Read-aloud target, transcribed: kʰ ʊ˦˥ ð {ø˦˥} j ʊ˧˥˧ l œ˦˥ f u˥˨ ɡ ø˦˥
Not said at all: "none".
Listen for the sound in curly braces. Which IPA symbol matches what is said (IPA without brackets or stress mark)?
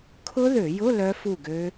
ø˧˩˧